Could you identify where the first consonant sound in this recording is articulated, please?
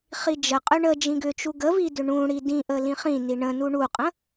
uvular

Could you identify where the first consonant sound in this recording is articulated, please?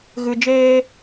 velar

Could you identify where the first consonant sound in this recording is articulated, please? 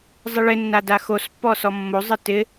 alveolar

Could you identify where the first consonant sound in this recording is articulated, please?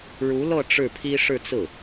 retroflex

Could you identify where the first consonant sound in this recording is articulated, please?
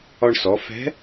retroflex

